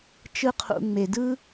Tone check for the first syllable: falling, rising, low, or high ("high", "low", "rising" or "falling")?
high